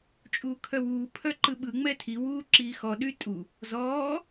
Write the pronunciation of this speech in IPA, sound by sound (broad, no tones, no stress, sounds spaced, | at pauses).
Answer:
t͡ʃʼ uː kʰ œ w uː pʰ œ ǃ ɯ ɓ ɯ ŋ͡m ɛ tʰ i w uː ǁ iː x ɔ ɗ y tʼ u | z ɔː